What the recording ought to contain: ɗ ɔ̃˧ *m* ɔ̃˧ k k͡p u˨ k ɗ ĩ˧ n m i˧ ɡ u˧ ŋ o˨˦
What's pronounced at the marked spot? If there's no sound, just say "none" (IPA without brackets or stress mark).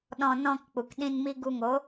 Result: n